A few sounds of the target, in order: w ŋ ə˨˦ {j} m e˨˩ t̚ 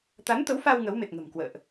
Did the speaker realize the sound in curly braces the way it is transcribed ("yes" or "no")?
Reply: no